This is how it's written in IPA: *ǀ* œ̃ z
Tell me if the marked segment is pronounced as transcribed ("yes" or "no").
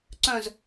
yes